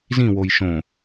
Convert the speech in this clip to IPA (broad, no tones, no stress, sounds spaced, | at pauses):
z ĩ w o j ʃ õ